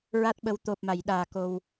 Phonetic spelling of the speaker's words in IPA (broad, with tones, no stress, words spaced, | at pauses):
ɹa˦˥t̚ɓə˧˥w t̪o˨˩p̚ma˨˩˨jɗaː˨˩ ko˧w